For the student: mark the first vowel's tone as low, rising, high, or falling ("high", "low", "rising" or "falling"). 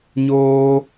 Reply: high